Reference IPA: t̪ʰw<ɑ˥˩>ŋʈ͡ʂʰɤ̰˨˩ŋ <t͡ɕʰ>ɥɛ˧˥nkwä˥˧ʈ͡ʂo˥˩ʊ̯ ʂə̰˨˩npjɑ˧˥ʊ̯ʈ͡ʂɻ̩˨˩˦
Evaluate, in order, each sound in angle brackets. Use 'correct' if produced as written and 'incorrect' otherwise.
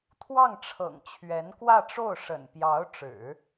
correct, correct

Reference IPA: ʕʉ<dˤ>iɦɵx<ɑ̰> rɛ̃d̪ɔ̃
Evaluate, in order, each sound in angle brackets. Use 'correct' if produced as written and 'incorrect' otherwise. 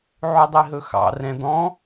correct, correct

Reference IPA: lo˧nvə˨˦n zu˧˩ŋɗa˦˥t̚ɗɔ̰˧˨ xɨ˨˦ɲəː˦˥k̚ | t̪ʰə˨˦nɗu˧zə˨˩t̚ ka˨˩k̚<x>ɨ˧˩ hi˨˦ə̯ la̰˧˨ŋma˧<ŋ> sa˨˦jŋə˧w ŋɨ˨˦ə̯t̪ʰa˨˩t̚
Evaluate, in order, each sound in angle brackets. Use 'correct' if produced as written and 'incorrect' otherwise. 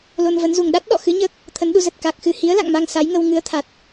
correct, correct

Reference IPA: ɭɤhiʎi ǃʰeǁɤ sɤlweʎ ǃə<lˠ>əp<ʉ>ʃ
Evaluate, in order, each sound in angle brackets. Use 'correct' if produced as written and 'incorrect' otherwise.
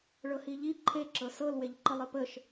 correct, incorrect

